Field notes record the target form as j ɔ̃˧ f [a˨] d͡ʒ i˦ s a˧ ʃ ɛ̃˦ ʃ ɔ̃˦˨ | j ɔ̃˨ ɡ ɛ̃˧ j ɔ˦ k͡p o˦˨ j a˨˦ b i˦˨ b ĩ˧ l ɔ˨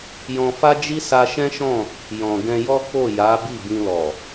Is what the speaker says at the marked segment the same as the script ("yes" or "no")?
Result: no